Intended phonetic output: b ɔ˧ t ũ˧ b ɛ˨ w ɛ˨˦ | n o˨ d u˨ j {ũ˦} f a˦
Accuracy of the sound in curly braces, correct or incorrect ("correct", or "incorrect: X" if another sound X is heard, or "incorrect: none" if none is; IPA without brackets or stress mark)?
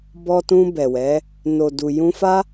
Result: incorrect: ũ˧